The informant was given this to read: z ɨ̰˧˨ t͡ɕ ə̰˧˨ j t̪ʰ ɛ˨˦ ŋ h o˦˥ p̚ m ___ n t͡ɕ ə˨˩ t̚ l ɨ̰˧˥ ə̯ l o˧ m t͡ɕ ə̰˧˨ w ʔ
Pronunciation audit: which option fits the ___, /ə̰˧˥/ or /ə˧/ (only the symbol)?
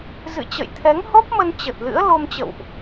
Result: ə˧